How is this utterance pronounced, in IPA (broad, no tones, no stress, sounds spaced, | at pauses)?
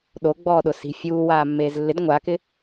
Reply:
ɗ o ɡ͡b ɔː ɗ ʊ s i̤ fʲ uː w aː mː eː z lː ɪ d ŋʷ a k ɪ